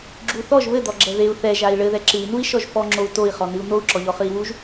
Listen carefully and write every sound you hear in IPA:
ɡ͡ǁu θɔʒ βɘd̪ɔɡ͡ǁɛ ðeu̯ θɛʒai̯ ɭɘðɛ ǁɨi̯nui̯ʃɔʒ fɔŋ͡ǁou̯ toi̯χɔnɨu̯ n̪ou̯ǁɔʎɔχɨi̯ wuʒ

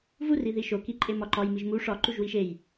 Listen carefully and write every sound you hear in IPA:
vuri ðiʃoki ǃʼemɒǃɒj miʒmu ʂɒ ǃuʒwiʃej

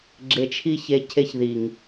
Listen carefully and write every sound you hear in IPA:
ɡ͡ǁe˧t͡ʃʰi˦ çe˦ cʰe˧çði˨ŋ

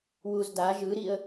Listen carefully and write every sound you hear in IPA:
wuzda ʒɯɾiə̯

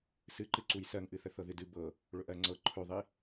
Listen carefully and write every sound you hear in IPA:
sɨǃɨǀuj sɜŋʔɨθə θɤðɨdɨ bɤ | ɭɵʔɜŋ͡ǀɤ ǃʰɵðˤi

